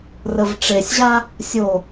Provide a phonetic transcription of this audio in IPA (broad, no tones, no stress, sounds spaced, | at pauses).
r ə v ʈ͡ʂ e sʲ ʑ a | sʲ o